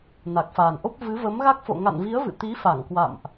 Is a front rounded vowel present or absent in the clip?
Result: absent